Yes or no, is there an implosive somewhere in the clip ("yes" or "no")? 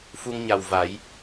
no